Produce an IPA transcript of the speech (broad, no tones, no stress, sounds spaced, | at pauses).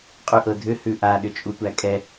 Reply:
qʼ ʉ ʔ ɤ dʱ ʏ h ʉ ʔ a ɗ ʏ t͡ʃʼ u tʷ æ kʼ ɛ